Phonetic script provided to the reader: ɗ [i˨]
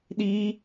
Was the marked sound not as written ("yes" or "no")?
yes